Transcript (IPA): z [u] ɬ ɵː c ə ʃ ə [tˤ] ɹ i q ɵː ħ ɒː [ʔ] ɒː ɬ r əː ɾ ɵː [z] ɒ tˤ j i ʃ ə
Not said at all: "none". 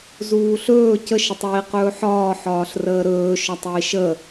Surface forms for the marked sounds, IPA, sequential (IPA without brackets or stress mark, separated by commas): uː, tˤ, ħ, ʃ